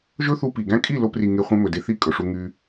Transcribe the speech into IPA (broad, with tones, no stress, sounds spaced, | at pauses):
ʒ ɵ˦ θ u˧ p i˨ ɡ æ̃˦ kʼ i˦˨ l o˧ p r i˨ ŋ e˦ χʷ ẽ˦ m ɵ˨ d e˦ θ i˦˨ kʼ ɵ˨ ʂ u˧ ŋ y˧